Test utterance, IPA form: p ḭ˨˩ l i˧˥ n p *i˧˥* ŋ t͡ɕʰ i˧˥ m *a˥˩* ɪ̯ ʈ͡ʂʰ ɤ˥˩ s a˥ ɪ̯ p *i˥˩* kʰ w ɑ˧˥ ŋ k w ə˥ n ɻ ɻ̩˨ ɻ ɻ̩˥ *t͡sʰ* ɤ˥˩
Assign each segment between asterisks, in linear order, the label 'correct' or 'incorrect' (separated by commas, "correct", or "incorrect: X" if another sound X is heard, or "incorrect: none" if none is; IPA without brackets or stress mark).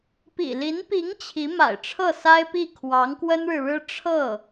correct, incorrect: a̰˨˩, correct, incorrect: ʈ͡ʂʰ